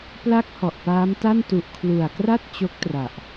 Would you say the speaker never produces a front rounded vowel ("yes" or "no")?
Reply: yes